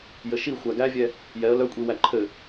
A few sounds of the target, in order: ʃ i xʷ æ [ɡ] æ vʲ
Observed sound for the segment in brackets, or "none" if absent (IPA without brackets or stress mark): ɡ